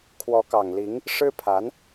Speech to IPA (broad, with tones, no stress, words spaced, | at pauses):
kʰwɔ˧˥kɑ˨˩ŋli˧˥ŋ | ʂɻ̩˥pʰa˧˥n